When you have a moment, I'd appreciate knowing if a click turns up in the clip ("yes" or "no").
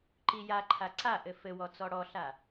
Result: yes